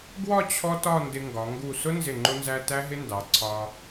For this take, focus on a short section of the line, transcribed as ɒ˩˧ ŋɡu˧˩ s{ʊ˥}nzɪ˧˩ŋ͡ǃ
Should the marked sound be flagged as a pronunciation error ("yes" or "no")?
no